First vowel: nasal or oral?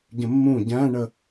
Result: nasal